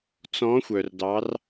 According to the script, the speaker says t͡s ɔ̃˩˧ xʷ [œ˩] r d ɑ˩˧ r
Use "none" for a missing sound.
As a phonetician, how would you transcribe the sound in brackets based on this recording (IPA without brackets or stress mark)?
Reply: œ˩